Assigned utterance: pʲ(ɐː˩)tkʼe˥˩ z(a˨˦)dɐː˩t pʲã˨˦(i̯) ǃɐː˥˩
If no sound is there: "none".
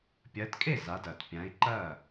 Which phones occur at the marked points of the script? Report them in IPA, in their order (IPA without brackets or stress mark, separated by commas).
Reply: ɐː˨˦, a˨˦, i̯